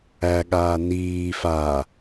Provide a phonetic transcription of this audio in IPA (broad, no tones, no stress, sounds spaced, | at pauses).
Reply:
æ ɠ aː n iː f a